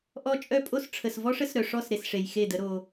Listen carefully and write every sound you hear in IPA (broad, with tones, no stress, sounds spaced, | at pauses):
ʔ ɔ˦ t͡ʃʼ œ˦ pʼ o˦ s ʈ͡ʂʰ ə˨ s v ɔ˦ ʂ ə˦ s ɾ œ˨ ʂ ɔ˦˨ s ɾ e˨ s ʂ e˨ j x e˦˨ d ə˦ ɾ o˦